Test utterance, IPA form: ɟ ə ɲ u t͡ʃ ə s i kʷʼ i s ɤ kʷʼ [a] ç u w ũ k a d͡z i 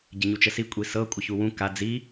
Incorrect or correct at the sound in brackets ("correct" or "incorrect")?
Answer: incorrect